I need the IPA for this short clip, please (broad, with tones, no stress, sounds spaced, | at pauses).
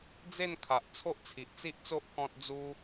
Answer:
d͡z e˥˧ n kʰ a˨ ʔ t͡sʰ o˦ ʔ t͡sʰ i˨ ʔ t͡s i˦ ʔ t͡s o˦ ʔ k ɔ̃˦ t̚ d͡z u˦